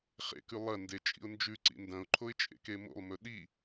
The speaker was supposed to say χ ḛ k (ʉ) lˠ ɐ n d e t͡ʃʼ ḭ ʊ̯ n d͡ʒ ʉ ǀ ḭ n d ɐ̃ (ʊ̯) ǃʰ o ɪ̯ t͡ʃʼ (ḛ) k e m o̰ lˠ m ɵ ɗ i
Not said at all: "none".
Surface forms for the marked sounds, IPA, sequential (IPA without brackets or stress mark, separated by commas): ʉ, ʊ̯, ḛ